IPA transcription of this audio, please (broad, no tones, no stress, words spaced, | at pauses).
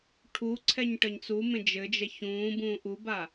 ʈʰuǀʰɛɲ ʈəɲt͡sumẽ d͡ʒɘd͡ʒɛç ũːbũːʔ uba